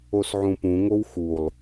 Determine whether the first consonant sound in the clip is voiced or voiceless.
voiceless